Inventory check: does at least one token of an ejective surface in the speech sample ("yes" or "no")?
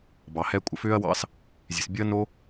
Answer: yes